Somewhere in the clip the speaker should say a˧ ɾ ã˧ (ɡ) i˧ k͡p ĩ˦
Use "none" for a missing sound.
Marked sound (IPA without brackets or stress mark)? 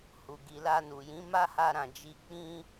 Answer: d͡ʒ